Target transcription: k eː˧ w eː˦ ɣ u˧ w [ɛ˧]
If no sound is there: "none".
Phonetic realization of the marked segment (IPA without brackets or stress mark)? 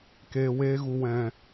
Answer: ɛ̃˧